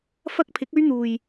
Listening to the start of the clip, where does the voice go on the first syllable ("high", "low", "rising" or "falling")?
high